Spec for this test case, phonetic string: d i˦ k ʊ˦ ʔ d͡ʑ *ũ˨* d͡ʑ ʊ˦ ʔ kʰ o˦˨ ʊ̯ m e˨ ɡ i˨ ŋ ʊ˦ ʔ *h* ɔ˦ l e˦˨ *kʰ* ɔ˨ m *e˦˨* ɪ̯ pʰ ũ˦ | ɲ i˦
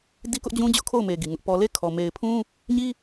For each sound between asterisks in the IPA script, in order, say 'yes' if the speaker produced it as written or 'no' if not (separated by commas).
no, no, yes, no